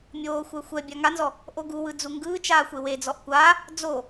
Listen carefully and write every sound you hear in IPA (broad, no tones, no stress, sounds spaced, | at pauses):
mʲ oː xʷ ɛ xʷ ɛ bʲ a ŋ a n z ɔ | ʔ o ɡ u w ɯ d͡z u ŋ ɡ ɯː t͡ʃ aː xʷ e w e d͡z ɔ ʔ kʷ aː | d͡z o